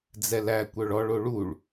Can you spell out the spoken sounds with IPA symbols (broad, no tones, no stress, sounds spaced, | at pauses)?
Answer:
d͡z ɛ l æ kʷ œ ɭ ɔ ɭ o ɭ u ɭ